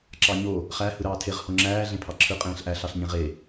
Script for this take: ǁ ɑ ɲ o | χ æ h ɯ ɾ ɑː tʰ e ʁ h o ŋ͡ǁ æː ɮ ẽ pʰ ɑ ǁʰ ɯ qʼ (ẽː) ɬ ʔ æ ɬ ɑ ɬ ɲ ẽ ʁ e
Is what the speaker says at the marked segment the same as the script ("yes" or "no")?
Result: yes